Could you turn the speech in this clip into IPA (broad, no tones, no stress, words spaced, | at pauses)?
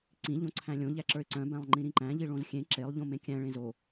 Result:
ǀĩ ʎõǀʰæ̃lʲõ ʎæǁə˞ɪ̯ǀœ̃ bæ̃lˠŋ͡ǃĩɾĩǃæ̃ ʎiɭõzxʲẽ ǁelˠ ʎõmẽkʲæ̃ ɭẽzo